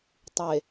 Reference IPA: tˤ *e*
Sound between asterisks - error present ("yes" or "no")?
no